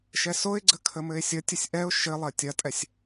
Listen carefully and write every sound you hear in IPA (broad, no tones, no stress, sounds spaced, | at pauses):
ʃ ɛ s o ɪ̯ ɡ͡ǀ ə kʰ ə m ɘ ɪ̯ sʲ ə tʲ ɘ sʲ ʔ ɛ ʊ̯ ʃ ɘ lˠ ɐ tʲ ɐ tʼ ɛ sʲ